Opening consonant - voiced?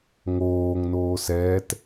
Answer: yes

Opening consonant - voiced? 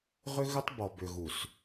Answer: yes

